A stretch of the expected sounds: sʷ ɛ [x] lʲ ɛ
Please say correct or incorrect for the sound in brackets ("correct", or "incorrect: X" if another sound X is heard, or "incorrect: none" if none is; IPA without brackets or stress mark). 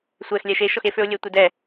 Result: correct